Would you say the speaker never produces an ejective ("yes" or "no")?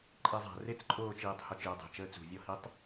no